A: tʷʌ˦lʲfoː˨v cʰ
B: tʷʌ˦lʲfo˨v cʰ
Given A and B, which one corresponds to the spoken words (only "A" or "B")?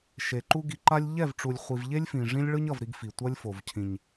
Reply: B